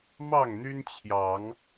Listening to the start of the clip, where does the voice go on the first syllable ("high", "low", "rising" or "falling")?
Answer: falling